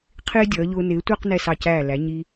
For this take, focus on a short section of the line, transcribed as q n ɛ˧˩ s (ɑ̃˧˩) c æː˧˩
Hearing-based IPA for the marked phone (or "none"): ɑ˧˩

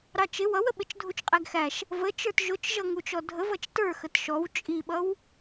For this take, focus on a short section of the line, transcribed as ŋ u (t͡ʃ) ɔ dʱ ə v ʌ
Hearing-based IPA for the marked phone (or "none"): t͡ʃ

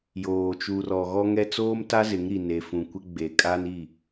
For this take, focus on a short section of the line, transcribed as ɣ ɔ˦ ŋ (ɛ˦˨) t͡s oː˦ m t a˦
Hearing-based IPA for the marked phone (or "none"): ɛ˦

